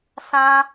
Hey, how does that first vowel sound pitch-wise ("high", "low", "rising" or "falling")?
high